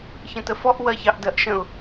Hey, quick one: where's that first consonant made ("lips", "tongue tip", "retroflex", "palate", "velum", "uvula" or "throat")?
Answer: palate